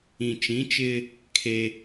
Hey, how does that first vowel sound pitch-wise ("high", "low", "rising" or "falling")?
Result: low